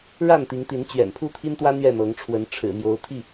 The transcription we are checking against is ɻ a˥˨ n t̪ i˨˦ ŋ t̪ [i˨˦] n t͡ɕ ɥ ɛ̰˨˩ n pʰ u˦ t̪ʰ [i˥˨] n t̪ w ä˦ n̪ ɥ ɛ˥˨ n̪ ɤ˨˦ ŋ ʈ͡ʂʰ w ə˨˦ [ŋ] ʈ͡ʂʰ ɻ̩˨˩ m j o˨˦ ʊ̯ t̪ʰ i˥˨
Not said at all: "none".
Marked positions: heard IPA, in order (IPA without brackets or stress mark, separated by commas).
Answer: i˨˦, i˦, n